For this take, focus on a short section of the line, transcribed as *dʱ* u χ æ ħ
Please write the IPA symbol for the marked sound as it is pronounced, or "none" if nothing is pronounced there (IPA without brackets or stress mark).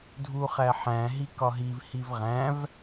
dʱ